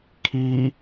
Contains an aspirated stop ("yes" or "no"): yes